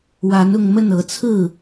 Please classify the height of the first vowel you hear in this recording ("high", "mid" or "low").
low